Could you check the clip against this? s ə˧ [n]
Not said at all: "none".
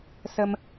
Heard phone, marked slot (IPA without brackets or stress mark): m